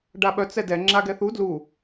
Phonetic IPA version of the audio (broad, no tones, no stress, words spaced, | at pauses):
ɖaɓœ t͡sɛdɛ ŋ͡ǁaɡɛθu dlu